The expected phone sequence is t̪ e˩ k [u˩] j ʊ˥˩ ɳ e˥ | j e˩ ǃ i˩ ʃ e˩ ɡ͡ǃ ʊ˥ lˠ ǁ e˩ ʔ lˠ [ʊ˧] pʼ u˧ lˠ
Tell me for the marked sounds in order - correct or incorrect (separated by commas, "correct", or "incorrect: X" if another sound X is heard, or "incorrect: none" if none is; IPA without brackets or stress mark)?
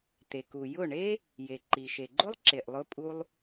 correct, correct